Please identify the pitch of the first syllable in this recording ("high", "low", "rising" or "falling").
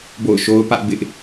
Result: falling